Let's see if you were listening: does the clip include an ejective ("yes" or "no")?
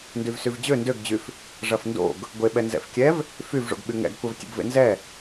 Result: no